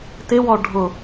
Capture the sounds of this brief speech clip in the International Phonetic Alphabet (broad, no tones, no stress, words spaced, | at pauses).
tɪwɔ ɖʱʊ